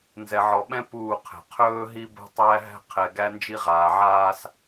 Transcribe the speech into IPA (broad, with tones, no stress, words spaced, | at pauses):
nzɛ˨ʕɔ˨ɓɛ̃˦ puː˦˨qʰɛ̤˨ qʰɵː˦ɦi˦ bə̤˦tˤæ˦ ɦæ̤˦qʰɛ˨ɡæ˦ nd͡ʒi˦ʁaː˨ʕaː˦s